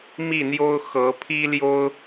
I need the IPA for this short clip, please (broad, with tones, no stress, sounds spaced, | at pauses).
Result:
m i˥˨ n̪ j o˦ ʊ̯ x ɤ˨˦ pʰ i˦ l j o˦ ʊ̯